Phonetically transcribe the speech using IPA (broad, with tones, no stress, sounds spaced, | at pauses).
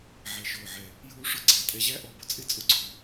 ʕ ɛ˧˩ ʃ ʊː˧˩ ʕ ɛ˧˩ | j uː˥ ʂ ʊ˥ ɡ͡ǀ æ˩˧ tʼ ɛ˧˩ ʑ æ˥ ʔ ɔ˧˩ b ʊ˧ t͡sʼ ɪ˥˧ t͡sʼ ʊ˧˩ ɡ͡ǀ ʊː˧